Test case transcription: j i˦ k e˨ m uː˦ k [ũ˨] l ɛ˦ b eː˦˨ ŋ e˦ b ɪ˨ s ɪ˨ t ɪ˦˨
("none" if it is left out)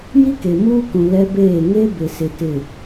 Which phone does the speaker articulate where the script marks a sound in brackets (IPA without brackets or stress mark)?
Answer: ũ˨